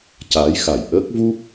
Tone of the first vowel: rising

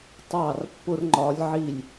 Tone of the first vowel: falling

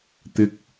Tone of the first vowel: rising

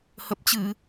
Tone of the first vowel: low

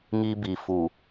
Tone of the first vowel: high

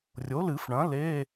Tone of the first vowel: rising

